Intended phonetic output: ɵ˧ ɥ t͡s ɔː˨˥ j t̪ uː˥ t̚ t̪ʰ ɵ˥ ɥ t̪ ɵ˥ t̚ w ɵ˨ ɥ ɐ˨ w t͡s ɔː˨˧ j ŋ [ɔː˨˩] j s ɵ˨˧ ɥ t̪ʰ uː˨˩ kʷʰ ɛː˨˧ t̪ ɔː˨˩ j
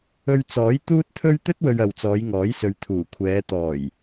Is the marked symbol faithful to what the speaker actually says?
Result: no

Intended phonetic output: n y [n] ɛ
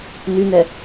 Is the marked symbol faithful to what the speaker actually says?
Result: yes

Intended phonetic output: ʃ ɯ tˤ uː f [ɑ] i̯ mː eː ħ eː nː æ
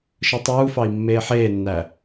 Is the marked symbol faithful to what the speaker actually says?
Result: yes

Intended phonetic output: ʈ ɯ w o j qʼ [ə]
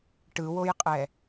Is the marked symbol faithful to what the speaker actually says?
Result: no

